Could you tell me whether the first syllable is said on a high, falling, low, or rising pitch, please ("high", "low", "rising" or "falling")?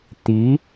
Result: rising